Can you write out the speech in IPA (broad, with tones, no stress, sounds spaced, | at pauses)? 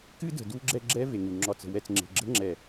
k ɨ˦ d ə̤˨ d u˦ ɡ͡ǁ ɛ˦ ɡ͡ǁ ɛ˦ v e˨ ŋ u˨ ŋ͡ǁ ɒ˨ t͡s ə̤˨ w ɛ˨ t͡s ŋ͡ǁ e̤˨ ɡ͡ǁ ə̤˦ ŋ͡ǁ ɛ˨